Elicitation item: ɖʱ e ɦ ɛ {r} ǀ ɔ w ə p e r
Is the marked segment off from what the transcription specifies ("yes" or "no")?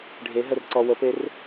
no